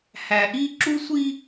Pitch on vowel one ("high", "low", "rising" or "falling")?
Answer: low